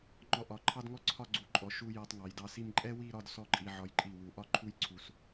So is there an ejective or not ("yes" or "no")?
yes